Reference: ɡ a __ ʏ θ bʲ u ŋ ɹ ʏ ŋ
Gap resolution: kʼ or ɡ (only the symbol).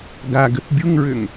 ɡ